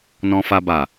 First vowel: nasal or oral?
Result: nasal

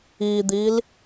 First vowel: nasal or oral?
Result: oral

